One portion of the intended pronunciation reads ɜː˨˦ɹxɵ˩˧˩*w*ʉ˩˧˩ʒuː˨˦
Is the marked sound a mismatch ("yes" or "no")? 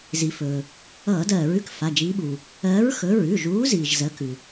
yes